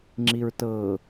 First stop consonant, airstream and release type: click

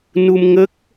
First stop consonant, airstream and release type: plain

